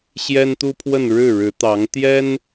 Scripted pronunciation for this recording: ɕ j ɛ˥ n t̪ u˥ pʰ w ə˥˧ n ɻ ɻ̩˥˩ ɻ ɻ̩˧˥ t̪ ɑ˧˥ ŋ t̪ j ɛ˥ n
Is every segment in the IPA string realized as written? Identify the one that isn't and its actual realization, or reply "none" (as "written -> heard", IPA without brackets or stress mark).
none